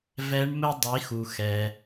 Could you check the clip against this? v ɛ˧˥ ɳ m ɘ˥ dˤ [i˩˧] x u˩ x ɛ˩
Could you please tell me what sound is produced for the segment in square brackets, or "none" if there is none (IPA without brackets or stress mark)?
i˩˧